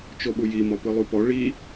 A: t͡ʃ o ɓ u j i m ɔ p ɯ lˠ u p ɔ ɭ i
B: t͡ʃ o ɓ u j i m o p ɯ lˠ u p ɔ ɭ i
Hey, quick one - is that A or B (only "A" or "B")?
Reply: A